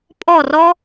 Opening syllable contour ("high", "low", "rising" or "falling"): falling